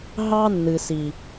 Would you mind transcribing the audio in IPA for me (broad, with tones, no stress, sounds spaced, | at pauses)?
ɦ ɑ˦ nː ɨ˨ s i˨